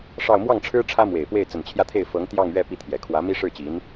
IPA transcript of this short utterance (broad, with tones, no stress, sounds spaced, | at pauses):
ʂ ɑ˥˧ ʊ̯ m w ɑ˥˩ ŋ ʈ͡ʂʰ ɻ̩˥ ʈ͡ʂʰ ä˥ m w e˨˩ ɪ̯ p w e˥˩ ɪ̯ t͡s ə˨˩ n t͡ɕʰ j ä˥˧ t̪ʰ e˥˩ ɪ̯ f ɤ˧˥ ŋ t̪ j ɑ˥˧ ŋ ɥ ɛ˥˧ p i˥˩ t̪ʰ j ɛ˨˩ kʰ w ä˧˥ m i˥ ʂ ɻ̩˥˩ t͡ɕ i˧˥ n